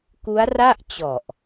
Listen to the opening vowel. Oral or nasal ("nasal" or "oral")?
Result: oral